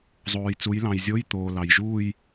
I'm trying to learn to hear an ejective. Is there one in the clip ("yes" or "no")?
no